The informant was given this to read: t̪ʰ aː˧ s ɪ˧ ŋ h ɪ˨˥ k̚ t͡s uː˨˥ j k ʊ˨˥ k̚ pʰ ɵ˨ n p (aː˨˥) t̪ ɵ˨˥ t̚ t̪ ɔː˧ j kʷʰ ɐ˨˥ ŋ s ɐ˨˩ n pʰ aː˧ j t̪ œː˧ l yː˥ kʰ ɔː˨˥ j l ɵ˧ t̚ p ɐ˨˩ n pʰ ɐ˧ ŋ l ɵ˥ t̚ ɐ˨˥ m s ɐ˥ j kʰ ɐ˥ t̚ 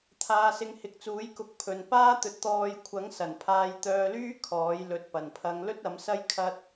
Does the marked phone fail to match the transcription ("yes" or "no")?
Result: yes